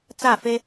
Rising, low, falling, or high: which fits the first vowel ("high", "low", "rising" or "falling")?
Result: falling